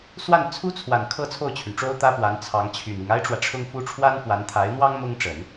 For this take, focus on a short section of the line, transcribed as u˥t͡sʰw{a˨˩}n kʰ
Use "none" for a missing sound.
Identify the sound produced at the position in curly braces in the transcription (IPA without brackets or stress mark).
a˨˩